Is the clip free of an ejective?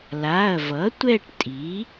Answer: no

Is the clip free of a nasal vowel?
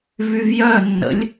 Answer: yes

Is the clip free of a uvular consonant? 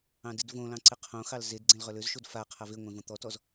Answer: no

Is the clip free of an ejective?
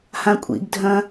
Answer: no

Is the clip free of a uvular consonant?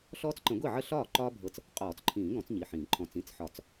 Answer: no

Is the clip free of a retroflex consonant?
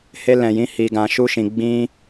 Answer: yes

